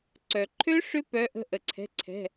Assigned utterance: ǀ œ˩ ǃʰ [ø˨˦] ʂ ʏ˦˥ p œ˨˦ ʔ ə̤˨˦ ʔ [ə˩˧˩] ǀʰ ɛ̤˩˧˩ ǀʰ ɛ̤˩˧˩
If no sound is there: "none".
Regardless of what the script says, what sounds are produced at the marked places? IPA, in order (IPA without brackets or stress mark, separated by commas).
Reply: ø˦˥, ə˩